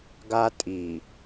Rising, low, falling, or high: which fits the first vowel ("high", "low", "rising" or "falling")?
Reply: high